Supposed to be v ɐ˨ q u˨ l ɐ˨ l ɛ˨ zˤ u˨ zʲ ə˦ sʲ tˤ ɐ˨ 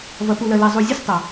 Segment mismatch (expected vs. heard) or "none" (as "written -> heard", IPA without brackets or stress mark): q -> p